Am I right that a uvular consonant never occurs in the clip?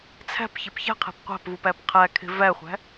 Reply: no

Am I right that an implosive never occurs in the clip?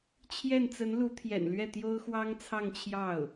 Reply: yes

